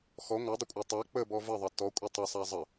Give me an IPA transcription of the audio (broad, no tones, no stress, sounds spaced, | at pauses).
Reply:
x ɔ ŋʷ a dˤ ə kʷʼ a tˤ a k͡p ə b ɔ v ə ðˤ ʌ t ɔ kʷʼ ə tˤ ə sˤ a zˤ ə